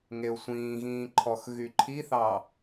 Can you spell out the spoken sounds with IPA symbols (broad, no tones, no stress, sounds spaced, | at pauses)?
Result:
ŋ e ʊ̯ sʷ ĩː ɣ ĩː ǃʰ ɔ x ɣ y ǃʰ i θ ɑ